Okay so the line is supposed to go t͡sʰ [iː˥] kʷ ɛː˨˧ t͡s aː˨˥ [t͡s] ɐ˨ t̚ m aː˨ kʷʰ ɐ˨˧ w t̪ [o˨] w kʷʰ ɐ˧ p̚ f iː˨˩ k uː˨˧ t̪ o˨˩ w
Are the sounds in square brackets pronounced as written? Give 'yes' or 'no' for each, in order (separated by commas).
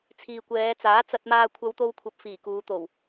no, yes, no